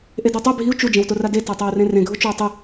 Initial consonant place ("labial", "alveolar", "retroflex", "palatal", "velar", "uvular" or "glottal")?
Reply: glottal